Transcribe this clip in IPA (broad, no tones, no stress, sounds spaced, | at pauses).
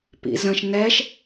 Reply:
p ḭ z ə̃ ʃ n ɛ ʃ